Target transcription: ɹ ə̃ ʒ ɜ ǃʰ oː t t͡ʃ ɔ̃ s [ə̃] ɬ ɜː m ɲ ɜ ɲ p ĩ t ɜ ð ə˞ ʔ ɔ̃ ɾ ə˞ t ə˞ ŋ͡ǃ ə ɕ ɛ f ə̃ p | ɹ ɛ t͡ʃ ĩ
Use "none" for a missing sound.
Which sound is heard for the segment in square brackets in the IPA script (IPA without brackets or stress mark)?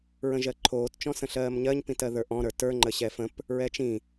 ə̃